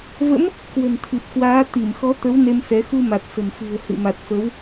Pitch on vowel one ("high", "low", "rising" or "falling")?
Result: rising